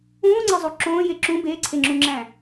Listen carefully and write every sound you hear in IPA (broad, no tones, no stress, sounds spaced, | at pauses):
ũː ŋ͡ǀ e zˤ u ǁ õː j e ǁ ũ b e ǀʰ e ŋ͡ǁ ũ ŋ͡ǁ æ̃